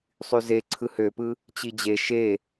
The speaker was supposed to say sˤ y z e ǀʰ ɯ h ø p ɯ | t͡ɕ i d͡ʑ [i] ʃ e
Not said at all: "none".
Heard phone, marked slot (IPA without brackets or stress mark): e